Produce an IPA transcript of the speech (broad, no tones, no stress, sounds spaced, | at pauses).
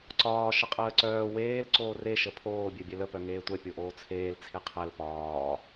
ǀ ɒː ʃ ə qʼ əː ǀ œː w eː l ǀ oː r e ʃ ə pʰ oː bʲ ɛ bʲ ɛ l ə p œ ŋ eː tʷ ɛ pʲ o ʔ oː t͡sʰ eː l t͡sʰ e qʰ ɛ l p ɒː